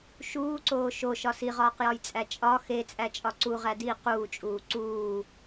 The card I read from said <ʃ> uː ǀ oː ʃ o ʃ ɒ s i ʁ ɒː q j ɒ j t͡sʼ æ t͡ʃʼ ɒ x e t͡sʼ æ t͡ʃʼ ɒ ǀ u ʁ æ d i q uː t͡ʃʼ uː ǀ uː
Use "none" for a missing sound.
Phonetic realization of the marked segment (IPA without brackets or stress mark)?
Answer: ʃ